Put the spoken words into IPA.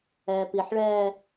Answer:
ɛː p i ħ ɭ ɛː

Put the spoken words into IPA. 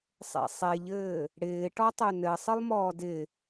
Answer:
sˤ ḛ sˤ e ʎ ɘː | ɽ ɪː ʈ ɔ tˤ ø n ɘ sˤ ɨ lˠ m ɔː d ɪ

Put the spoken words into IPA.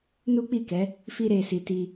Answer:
n u˦ k͡p i˦˨ k ɛ˨˦ | f i˧ ɾ e˨ s i˨ t i˧

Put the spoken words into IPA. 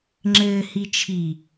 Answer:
ŋ͡ǁ ɘː h i t͡ʃʰ i

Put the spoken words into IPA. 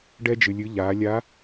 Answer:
ɖ ɛ˧ d͡ʒ ɨ˩ lʲ ɨ˩˧ ʎ a˩˧ lʲ a˧˥

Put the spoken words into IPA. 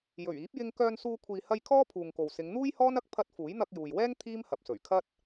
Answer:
j ɵ˨˩ ɥ iː˨˥ p̚ j ɪ˧ ŋ k œː˧ n s uː˧ kʷʰ iː˨ h ɐ˧ j kʰ ɔː˥ pʰ uː˨ ŋ k o˨ w s ɪ˨˧ ŋ n̪ uː˥ j h ɔː˥ n ɐ˥ k̚ pʰ ɐ˧ t̚ f uː˨˥ j n̪ ɐ˧ k̚ j uː˨ j w ɛː˥ ŋ t̪ʰ iː˥ m h ɐ˨ p̚ s ɵ˨˩ ɥ kʰ ɐ˥ t̚

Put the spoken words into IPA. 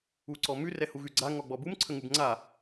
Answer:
u ǀ ɔ m ʉ r ɛ h u ɣ ʉ ɡ͡ǀ a ŋ ɔ ɡ͡b ɔ b u m ǀʰ ə ŋ u b ŋ͡ǀ a

